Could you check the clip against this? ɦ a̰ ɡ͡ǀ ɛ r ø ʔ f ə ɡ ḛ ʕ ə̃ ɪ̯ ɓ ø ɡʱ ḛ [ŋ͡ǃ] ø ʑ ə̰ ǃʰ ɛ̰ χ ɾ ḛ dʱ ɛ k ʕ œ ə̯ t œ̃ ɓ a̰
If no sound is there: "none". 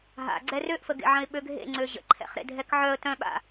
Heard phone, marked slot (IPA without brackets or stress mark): ŋ͡ǀ